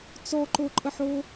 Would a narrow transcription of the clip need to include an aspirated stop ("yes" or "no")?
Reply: no